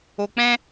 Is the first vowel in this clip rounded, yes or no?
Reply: yes